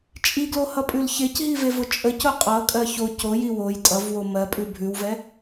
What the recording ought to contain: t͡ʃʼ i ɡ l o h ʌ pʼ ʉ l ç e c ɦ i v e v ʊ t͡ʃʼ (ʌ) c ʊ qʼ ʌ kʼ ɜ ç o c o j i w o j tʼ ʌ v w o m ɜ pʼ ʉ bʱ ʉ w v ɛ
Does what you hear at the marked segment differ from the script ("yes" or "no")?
yes